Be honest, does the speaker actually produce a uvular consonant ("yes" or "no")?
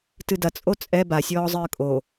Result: no